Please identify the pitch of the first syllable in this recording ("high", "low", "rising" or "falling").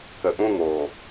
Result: low